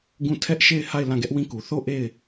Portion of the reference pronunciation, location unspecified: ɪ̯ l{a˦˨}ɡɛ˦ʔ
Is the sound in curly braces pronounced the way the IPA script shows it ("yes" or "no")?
no